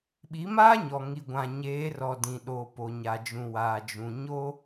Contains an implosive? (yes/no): yes